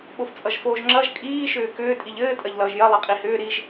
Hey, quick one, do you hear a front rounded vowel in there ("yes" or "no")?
yes